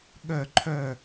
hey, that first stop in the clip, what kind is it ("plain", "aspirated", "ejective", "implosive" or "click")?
implosive